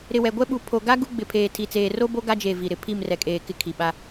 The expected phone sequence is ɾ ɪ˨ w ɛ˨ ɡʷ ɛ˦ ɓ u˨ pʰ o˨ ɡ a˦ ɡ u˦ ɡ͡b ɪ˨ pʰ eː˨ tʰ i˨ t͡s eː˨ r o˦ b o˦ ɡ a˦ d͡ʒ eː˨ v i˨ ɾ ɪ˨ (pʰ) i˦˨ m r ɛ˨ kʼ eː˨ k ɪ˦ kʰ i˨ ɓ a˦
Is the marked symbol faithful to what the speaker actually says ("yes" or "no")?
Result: yes